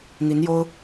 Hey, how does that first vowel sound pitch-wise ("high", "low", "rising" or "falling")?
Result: rising